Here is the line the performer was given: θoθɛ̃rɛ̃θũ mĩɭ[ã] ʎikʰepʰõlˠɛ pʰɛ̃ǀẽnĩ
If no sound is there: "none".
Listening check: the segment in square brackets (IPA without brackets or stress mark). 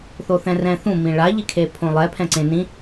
a